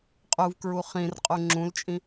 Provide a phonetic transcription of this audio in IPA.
qʼuvkɹu χĩrqʼu ŋ͡ǁũlt͡ʃʼĩ

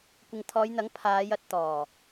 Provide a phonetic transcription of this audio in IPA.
kʷɪ˨ŋt̪ʰɔː˨˧jn̪ɐ˨˥ŋ pʰaː˨˧jɐ˧t̚t̪ɔː˨˩

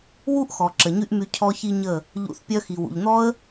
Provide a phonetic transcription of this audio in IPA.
wu˦ʔ xɔ˨ǁə˨ɲy˦ʔmy˧ cʰɔ˧çi˧ ɲə˦˨ | ʎṵ˨˦θpʲœ˧xi˨ wṵ˨ʎn̪ɔ˦ə̯

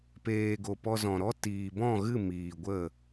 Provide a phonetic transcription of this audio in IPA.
peː˨ ɡo˨pɔ˧zɔ̃˨ɾɔ˦ tiː˨bɔ̃˦˨ɣɨ˦˨ miː˨ ɡʷə˦˨

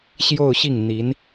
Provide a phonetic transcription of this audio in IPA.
ɕjo˥˧ʊ̯ɕi˥˩ŋn̪i˧˥n

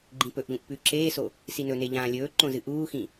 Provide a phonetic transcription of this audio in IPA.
ɡ͡ǃĩpɵʔʎũʔ pʉ ǁeːso | sinɵne ʎãːlʲɵːǃõ zɨʔuːxĩ

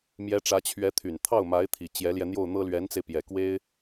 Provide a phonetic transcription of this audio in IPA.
mjɛ˧˥ʈ͡ʂä˧˥t͡ɕʰɥɛ˧˥t̪ʰy˨˩n t̪ʰɑ˥˩ʊ̯ma˧˥ɪ̯ t̪ʰi˨˩ t͡ɕjɛ˧˥ljɛ˧n̪jo˥˩ʊ̯n̪ɤ˥ lɥɛ˧˥nt͡se˧ɪ̯ pjɛ˨˩kwe˥ɪ̯

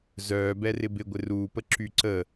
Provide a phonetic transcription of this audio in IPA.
zœː bɛrɪbɪ ɡʷɪruːpə ǁyǀə

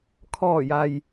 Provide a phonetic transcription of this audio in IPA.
kʰɔː˧˩ja˩j

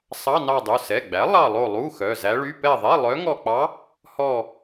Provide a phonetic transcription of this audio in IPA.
sˤɑ˧˥˧nɑ˦˨dˤu˩˧˩ sɛ˩˧˩ɡ͡bæ˩˥ lˠɑ˦˨lˠo˦˨ lˠu˧˥˧xœ˩˧˩ zæ˧˥ɭy˧˥˧ pɛ˦˨ðˤɛ˧˥˧ lˠœ˧˥ŋɔ˦˨k͡pɑ˧˥ | hɔ˦˨

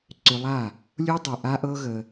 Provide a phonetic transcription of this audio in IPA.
ǀʏ˧lˠa˦˨ | lʲu˦dˤu˨ʔa˦ ʔɤ˦ɣə˧

